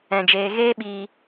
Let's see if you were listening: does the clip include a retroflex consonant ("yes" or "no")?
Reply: no